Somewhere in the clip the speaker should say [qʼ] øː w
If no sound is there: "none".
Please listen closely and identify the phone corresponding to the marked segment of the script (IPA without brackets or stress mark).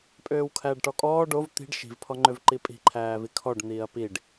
pʼ